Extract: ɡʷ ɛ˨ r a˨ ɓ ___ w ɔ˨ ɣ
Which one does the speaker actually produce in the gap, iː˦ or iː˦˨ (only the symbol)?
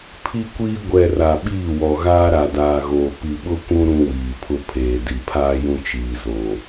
iː˦˨